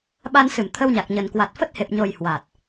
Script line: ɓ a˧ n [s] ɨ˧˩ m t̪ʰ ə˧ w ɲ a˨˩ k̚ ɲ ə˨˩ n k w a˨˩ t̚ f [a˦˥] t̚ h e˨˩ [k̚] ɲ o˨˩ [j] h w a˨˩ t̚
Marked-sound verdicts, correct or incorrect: correct, incorrect: ə˦˥, incorrect: p̚, correct

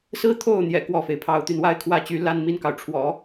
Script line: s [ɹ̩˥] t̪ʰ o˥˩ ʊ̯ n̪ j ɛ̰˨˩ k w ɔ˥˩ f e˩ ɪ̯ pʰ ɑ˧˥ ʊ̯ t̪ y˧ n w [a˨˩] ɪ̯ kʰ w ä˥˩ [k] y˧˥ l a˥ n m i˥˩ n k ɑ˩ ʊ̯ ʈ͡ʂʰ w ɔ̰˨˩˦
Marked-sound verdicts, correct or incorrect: correct, incorrect: a˥, incorrect: t͡ɕ

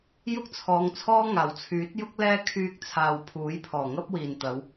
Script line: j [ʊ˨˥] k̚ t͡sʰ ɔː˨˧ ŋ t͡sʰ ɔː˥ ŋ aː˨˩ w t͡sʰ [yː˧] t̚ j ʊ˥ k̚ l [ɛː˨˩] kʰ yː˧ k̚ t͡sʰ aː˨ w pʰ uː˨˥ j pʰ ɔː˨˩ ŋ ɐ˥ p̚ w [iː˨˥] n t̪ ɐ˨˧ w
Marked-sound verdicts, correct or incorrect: incorrect: ʊ˥, incorrect: yː˨˥, incorrect: ɛː˥, incorrect: iː˨

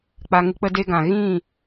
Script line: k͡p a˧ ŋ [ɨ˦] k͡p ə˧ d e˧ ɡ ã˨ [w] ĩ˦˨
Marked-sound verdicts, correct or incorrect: correct, incorrect: ɣ

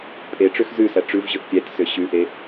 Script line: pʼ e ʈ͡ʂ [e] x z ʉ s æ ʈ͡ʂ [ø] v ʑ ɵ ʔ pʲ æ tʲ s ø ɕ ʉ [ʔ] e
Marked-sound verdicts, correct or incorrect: incorrect: ø, incorrect: ʉ, correct

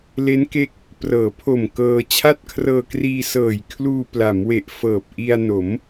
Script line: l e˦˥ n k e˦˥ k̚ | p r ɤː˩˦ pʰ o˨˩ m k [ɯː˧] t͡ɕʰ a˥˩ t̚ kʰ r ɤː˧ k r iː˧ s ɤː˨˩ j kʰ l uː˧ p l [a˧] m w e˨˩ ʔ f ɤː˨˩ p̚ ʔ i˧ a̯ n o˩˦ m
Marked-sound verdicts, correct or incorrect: incorrect: ɤː˧, incorrect: a˩˦

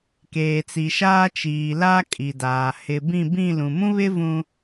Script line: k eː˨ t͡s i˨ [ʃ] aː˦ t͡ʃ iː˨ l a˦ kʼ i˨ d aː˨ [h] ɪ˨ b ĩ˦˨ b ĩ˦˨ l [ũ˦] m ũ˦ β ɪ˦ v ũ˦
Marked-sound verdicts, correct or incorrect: correct, correct, incorrect: ũ˨

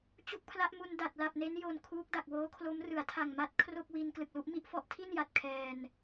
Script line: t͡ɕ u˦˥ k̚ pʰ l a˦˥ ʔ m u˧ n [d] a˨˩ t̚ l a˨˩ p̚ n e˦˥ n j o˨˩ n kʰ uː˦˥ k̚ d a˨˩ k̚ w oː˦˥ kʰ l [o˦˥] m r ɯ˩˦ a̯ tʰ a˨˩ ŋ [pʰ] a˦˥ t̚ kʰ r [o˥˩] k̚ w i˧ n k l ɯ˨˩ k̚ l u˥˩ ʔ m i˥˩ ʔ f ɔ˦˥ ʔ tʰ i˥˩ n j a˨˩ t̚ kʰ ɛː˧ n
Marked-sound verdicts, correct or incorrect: correct, correct, incorrect: m, correct

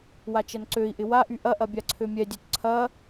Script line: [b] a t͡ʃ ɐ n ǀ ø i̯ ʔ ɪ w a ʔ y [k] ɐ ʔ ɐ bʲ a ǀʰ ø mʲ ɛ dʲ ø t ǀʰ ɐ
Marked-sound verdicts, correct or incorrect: incorrect: w, incorrect: ʔ

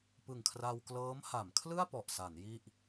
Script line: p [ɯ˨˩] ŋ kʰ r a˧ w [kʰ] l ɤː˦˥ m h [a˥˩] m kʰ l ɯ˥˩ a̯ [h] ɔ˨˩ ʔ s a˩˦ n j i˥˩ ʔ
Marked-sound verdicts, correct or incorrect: correct, incorrect: k, incorrect: a˩˦, incorrect: p

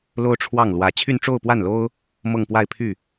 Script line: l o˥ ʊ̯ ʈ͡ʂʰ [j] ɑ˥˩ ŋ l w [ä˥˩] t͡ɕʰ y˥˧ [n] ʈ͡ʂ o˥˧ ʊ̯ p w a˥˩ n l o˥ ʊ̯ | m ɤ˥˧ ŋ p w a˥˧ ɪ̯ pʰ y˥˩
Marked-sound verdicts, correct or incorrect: incorrect: w, incorrect: ä˧˥, correct

